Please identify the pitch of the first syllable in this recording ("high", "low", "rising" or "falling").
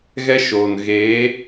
high